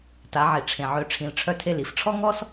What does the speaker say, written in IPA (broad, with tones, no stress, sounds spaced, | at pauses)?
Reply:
t a˩˧ ʕ i˩ ʈ͡ʂʰ ẽ˩ ʕ ø˩˧ ʈ͡ʂʰ ĩ˩˧ l ʈ͡ʂʰ œ˧ tʰ e˧ l i˩ f ʈ͡ʂʰ ɔ˥ ŋ ɔ˥ s